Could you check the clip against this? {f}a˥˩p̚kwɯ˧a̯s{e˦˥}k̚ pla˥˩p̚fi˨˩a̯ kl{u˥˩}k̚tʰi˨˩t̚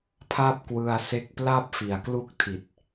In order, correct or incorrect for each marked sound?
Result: incorrect, correct, correct

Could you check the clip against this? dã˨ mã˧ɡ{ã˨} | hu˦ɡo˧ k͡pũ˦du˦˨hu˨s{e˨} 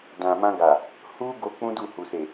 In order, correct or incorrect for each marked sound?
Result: incorrect, correct

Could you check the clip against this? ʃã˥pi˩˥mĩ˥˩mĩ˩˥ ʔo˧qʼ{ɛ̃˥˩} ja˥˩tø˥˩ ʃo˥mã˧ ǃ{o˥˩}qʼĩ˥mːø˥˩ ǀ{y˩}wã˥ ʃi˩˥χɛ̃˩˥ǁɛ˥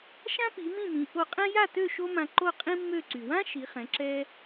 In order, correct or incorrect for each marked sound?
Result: incorrect, correct, correct

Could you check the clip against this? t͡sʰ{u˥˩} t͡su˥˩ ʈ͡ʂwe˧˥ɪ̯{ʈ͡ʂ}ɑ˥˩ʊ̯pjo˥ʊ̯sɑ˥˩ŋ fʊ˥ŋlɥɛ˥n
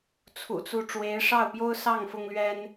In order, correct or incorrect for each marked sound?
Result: incorrect, incorrect

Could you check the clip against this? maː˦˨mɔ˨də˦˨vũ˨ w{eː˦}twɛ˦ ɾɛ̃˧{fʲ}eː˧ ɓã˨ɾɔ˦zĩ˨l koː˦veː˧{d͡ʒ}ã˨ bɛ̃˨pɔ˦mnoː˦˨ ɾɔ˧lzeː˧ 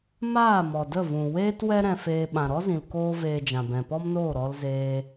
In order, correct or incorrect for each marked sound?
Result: correct, incorrect, correct

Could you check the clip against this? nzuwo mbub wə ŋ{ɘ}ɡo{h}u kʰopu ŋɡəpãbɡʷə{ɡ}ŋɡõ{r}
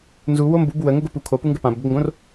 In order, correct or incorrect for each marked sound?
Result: correct, incorrect, correct, correct

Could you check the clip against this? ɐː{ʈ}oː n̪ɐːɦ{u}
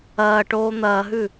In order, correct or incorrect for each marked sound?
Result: correct, incorrect

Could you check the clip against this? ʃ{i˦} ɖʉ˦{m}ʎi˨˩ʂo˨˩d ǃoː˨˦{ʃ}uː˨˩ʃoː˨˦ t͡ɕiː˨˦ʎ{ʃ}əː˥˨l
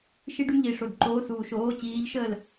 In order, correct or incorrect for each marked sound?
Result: correct, correct, incorrect, correct

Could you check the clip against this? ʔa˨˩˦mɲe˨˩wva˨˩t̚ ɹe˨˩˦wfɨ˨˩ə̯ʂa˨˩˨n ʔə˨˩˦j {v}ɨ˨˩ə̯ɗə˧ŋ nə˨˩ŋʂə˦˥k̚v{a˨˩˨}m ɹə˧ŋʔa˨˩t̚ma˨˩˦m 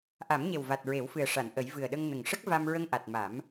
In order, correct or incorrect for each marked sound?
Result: correct, incorrect

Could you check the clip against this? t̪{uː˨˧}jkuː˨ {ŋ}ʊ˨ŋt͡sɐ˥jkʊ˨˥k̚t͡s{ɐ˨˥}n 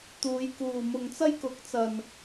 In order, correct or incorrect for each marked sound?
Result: correct, incorrect, incorrect

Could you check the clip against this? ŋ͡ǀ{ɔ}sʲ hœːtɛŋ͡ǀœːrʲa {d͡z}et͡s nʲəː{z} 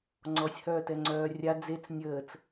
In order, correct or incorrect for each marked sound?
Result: correct, correct, incorrect

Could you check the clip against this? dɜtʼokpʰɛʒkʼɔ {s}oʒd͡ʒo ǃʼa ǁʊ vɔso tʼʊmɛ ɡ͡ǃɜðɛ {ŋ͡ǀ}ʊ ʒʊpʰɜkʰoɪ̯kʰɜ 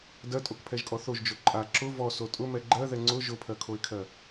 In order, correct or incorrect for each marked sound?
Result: incorrect, correct

